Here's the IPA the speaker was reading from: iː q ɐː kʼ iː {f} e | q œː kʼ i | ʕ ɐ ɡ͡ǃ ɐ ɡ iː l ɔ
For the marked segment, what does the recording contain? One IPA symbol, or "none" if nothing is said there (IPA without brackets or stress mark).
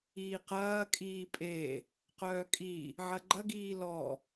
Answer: pʼ